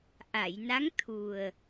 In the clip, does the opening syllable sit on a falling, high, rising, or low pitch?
low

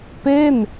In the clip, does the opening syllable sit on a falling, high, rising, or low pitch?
falling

